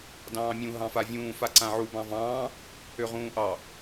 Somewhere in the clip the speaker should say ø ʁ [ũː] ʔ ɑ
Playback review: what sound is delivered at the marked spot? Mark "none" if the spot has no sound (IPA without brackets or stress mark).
ũː